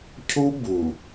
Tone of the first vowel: high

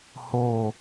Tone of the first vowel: falling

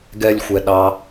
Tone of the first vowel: high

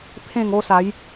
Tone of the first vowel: falling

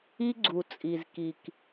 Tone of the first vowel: high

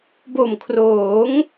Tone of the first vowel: low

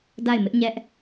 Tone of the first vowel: falling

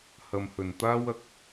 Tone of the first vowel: low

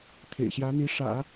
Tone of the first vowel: low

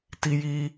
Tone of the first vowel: high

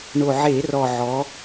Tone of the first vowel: low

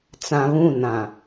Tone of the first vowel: low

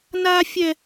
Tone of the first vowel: high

